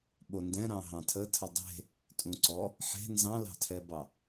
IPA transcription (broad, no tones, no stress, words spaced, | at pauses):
ɓondɛ̃ɾɑ̃ ɦɑ̃tʰətʰə dˤe̤ | tʼũǀɔ | ħe̤ nzɑ̃lɑ̤tʰɛbɑ